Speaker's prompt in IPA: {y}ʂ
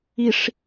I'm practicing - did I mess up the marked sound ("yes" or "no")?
yes